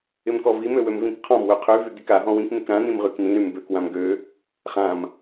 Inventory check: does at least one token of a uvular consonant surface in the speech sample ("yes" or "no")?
yes